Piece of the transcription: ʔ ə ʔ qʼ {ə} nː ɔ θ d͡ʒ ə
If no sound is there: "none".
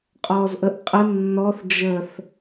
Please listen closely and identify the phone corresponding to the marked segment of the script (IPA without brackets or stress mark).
ə